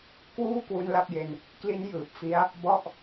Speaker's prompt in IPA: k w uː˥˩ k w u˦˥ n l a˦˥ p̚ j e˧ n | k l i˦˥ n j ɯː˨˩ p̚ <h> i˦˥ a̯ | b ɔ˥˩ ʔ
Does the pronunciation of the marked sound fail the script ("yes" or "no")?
yes